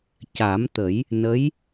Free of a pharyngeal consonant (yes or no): yes